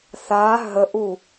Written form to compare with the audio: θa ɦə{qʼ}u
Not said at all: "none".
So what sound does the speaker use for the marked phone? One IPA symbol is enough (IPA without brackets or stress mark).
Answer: ʔ